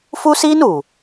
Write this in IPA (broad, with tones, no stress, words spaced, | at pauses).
fu˦siː˦nu˨